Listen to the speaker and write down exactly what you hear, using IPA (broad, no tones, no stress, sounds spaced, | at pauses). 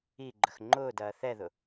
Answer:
i ɡ͡ǃ ə x ŋ͡ǃ ʊː d ɐː θ ɛ ð ʊ